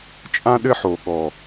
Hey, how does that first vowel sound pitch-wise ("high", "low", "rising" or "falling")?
high